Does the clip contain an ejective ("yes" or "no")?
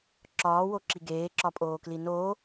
yes